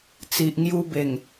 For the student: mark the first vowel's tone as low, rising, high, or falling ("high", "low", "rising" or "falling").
low